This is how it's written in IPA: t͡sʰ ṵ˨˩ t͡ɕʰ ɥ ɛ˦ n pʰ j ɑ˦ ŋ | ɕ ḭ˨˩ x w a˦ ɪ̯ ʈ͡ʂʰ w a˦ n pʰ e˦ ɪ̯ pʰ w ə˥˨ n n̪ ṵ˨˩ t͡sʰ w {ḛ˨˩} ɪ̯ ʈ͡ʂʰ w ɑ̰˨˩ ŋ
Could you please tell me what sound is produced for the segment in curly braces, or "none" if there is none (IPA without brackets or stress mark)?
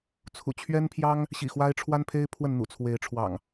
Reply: e˨˦